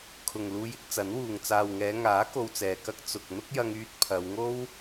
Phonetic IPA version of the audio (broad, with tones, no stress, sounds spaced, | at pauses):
kʰ ʊ˨ ŋ l uː˧ j ɪ˥ k̚ t͡s ɐ˨˥ n w uː˨ ŋ t͡s aː˨ w ŋ ɛː˨˧ ŋ aː˨˥ k o˧ w t͡s ɛː˨ k ɐ˥ k̚ t͡s ʊ˨ k̚ n̪ ʊ˥ k̚ j ɐ˧ ŋ yː˧ t̚ pʰ ɐ˨˧ w ŋ o˥ w